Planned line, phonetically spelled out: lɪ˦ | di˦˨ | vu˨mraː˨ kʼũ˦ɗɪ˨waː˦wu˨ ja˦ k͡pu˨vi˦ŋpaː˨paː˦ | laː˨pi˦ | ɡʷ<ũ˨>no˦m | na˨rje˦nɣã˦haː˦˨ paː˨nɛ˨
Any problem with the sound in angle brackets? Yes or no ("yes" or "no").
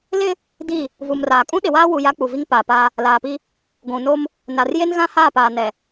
no